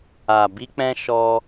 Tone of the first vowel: low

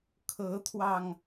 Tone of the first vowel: rising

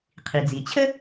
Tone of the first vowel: low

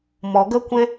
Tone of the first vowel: low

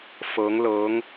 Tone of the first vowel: rising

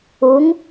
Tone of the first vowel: rising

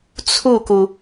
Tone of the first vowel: falling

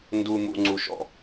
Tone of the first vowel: low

